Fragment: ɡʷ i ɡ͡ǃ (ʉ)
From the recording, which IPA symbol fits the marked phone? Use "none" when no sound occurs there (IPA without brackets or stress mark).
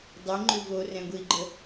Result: ə